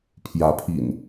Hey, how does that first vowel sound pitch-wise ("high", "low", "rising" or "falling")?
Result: rising